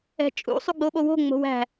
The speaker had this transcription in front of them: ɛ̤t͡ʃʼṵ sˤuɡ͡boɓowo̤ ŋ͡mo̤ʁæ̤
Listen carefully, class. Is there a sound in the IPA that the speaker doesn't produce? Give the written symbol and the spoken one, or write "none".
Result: ʁ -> w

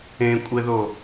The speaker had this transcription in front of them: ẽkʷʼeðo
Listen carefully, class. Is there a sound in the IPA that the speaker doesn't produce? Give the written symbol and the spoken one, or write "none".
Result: none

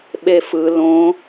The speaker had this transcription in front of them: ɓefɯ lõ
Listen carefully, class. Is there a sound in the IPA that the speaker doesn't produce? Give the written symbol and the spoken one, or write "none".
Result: none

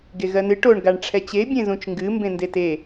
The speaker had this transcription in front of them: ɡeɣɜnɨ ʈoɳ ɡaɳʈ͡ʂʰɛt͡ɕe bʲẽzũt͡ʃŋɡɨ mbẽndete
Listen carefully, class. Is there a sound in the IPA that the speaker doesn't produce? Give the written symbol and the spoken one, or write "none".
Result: none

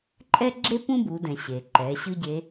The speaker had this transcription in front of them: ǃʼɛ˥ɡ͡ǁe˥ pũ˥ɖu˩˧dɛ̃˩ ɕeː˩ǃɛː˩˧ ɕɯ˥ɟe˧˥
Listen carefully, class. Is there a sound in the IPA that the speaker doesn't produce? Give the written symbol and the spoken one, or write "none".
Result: ɖ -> b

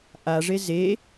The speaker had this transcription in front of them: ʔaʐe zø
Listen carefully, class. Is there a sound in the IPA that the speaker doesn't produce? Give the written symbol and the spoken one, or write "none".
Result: ø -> e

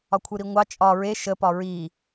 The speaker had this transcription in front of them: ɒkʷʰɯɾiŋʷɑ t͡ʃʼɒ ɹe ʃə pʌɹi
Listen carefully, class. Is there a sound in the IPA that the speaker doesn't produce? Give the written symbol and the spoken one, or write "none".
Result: ʌ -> ɒ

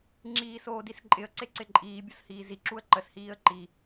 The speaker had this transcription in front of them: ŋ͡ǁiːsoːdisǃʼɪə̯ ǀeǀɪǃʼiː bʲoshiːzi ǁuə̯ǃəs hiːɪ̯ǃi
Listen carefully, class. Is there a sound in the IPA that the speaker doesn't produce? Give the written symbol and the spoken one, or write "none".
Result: ɪ̯ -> ə̯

